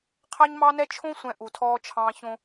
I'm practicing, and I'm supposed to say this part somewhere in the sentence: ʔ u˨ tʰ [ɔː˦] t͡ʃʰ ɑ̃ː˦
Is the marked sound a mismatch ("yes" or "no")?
no